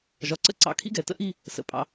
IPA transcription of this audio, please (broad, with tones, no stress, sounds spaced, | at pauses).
ʒ ɒ˩˧ ǀ ə̰˥˧ ǀ ɑ̰˧˩ kʰ ḭ˥ ɡ ɛ˩˧ t ə̰˥ ʔ i˥˧ | s ə̰˧ pʼ ɑ̰˧